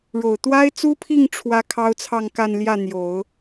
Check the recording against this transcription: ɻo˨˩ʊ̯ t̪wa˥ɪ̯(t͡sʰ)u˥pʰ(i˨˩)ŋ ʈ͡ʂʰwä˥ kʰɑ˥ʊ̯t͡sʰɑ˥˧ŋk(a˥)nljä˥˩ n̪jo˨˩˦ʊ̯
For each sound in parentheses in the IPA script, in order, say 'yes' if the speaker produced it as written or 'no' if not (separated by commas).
no, no, no